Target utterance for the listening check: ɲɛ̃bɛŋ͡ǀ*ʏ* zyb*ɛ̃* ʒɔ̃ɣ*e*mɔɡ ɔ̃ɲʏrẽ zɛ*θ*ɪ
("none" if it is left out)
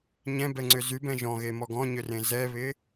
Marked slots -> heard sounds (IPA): ʏ, ɛ̃, e, β

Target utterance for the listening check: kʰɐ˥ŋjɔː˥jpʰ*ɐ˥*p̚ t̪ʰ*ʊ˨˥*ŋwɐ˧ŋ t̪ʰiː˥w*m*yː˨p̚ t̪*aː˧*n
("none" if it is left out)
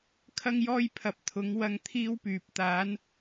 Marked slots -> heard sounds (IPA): ɐ˨˥, ʊ˨˥, p, aː˨˥

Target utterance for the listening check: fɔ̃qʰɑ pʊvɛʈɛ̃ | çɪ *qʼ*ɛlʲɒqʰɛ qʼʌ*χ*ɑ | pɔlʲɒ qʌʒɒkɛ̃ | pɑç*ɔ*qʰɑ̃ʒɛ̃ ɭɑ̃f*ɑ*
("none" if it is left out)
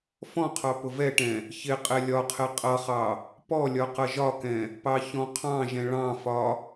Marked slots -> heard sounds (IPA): qʼ, χ, ɔ̃, ɒ

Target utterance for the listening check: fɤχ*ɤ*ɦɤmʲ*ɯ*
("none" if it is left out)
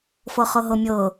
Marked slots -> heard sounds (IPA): ɤ, ɤ

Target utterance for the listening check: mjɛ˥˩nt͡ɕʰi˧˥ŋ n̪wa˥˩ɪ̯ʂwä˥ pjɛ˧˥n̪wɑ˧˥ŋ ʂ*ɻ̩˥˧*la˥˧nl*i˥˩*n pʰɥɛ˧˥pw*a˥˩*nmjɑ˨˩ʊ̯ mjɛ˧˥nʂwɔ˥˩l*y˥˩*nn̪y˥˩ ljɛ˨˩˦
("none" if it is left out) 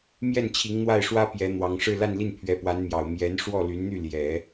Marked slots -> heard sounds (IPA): ɻ̩˥˧, i˥˩, a˧˥, y˧˥

